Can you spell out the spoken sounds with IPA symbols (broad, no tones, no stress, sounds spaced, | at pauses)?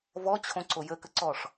v ɔ t͡ɕʰ õ ǀ o j ə k ə ǀ ɔ ʂ